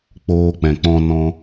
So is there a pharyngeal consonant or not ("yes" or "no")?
no